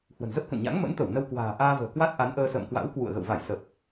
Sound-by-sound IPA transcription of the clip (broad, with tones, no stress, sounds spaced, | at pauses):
h w ə̤˨˩ n z ə˦˥ p̚ k ə̰˧˨ n ɲ a̰˧˥ ŋ m ə̰˧˥ n t̪ ə˧˩ w n ə˧ w k w a̤ː˨˩ ʔ aː˧ v ə̤ː˨˩ k w a˦˥ t̚ ʔ a˨˦ n ʔ əː˧ s ə̰ː˧˨ m k w a̰˧˥ w k w ṵ˧˨ ə̯ ɣ ə̰˧˨ w v a˧˩ j s ə˨˩ p̚